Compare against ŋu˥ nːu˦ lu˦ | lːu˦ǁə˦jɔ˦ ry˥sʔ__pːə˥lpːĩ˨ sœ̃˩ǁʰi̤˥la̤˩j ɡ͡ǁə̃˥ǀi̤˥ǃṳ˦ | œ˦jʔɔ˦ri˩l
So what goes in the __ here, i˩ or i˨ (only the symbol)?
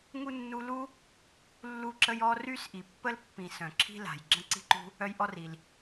i˨